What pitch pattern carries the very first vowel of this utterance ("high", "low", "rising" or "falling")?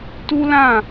high